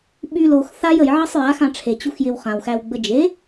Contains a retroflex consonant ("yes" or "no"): yes